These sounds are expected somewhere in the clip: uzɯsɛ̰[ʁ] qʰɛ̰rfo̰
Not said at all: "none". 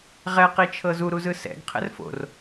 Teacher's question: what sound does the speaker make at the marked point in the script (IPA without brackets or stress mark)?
ɡ